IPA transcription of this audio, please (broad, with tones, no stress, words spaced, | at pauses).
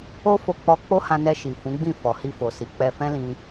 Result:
o˦fo˧k͡pɔ˧ k͡po˦hã˧nɛ˧ ʃi˨fũ˨˦ɡ͡bĩ˦˨ fɔ˨hi˧fo˨si˨˦ k͡pɛ˧fɛ̃˦lĩ˧